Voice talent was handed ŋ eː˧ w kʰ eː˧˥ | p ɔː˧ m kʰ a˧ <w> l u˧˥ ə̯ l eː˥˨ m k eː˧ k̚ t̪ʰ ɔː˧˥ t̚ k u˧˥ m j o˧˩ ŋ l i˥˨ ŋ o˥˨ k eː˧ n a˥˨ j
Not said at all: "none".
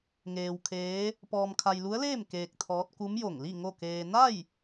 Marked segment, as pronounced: j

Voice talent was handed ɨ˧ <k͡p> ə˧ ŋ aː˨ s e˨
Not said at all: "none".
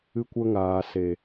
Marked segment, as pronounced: kʷ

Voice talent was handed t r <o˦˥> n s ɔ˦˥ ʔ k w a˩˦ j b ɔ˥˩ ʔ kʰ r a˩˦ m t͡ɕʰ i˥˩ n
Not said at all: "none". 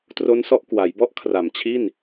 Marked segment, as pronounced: o˦˥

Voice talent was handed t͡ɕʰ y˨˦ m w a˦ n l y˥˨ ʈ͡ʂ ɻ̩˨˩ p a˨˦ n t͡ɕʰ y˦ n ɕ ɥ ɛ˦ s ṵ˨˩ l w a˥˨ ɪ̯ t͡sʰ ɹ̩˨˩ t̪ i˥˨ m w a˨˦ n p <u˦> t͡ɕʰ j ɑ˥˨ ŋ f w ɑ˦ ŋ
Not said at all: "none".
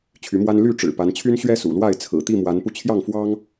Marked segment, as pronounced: u˧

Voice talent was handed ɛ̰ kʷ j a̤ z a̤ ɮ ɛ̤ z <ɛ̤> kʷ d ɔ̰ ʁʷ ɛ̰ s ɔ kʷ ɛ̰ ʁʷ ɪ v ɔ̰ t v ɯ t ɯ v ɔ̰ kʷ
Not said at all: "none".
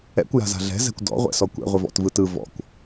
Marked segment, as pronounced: ɛ̤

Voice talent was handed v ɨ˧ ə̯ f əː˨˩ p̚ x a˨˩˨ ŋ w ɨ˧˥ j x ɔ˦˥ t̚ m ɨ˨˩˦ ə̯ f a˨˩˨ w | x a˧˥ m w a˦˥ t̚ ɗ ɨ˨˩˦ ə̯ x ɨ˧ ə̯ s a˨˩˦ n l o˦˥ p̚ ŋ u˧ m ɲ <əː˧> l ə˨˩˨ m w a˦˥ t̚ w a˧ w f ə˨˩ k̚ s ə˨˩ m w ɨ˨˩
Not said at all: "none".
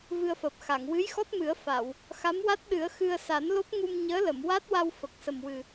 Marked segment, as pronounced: əː˧˥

